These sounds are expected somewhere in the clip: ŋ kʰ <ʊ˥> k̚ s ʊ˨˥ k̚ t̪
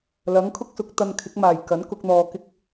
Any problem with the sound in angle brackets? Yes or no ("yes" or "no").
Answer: no